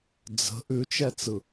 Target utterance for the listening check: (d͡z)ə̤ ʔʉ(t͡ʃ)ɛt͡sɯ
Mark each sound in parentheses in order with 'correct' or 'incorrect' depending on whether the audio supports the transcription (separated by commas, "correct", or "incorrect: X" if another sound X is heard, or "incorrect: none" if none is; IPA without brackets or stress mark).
correct, correct